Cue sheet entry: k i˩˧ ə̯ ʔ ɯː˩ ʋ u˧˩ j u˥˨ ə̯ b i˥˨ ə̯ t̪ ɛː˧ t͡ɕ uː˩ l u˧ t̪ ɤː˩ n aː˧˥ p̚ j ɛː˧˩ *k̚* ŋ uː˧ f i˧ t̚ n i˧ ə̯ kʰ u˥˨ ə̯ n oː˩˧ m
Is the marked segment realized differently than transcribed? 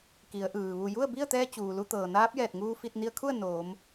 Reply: yes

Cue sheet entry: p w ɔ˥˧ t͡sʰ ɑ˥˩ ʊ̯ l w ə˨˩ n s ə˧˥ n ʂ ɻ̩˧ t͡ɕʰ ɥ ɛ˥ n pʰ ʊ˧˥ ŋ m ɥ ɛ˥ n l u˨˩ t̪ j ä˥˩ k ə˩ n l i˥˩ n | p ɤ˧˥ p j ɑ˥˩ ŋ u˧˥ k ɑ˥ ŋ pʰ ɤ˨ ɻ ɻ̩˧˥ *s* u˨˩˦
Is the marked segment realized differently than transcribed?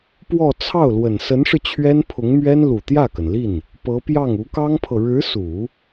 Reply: no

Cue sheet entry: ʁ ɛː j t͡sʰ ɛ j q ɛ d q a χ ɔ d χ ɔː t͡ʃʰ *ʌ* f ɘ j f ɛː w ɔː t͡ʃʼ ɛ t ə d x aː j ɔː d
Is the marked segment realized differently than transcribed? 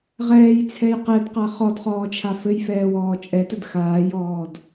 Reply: yes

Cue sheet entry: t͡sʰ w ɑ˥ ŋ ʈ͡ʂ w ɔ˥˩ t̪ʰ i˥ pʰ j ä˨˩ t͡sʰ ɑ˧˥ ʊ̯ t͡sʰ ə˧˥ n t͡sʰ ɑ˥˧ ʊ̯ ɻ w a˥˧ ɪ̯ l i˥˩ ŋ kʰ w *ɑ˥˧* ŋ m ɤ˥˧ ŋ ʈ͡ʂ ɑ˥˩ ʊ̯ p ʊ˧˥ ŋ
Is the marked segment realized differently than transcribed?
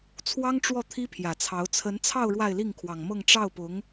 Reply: yes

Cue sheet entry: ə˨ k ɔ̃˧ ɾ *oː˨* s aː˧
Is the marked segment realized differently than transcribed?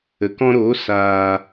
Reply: yes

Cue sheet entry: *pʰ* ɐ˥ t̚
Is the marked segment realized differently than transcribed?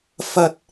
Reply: yes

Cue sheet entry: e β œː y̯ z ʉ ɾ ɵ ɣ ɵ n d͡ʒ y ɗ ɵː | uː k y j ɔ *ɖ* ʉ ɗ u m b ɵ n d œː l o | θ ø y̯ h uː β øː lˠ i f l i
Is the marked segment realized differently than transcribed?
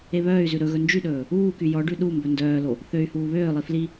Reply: no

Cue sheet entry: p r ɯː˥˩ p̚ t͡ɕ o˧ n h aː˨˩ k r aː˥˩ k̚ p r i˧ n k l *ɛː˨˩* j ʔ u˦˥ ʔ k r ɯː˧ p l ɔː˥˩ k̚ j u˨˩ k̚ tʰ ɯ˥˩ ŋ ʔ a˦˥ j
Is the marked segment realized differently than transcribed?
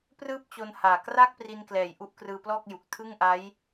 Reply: no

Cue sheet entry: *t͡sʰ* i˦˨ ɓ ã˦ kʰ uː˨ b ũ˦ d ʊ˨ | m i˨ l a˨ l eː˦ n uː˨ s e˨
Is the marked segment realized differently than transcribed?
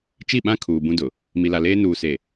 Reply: yes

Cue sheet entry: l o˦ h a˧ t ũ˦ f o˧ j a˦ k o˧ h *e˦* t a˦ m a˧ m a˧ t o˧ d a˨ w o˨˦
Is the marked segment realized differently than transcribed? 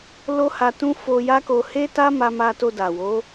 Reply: no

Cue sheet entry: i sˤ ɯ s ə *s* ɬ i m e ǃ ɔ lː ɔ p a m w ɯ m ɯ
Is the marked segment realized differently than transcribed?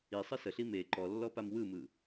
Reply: yes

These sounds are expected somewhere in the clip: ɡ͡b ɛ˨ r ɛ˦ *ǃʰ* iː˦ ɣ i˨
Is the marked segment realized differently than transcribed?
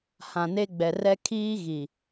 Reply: yes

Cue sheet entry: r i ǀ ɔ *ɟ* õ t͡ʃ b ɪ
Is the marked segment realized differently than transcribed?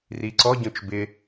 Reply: no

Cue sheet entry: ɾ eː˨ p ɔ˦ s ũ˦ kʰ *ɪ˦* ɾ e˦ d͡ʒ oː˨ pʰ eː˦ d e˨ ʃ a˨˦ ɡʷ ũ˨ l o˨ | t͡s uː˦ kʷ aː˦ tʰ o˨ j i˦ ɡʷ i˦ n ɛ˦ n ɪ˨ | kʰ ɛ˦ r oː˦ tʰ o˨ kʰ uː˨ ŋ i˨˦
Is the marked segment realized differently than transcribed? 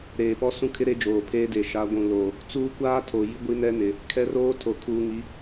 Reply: no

